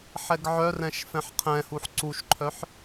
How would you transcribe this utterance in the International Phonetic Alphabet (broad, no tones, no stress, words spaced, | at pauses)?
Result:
ħɛɡʕœrɛ̃ʃ fɛ̃ħqʰɛ̃huħ ǀuʃǃʰœħ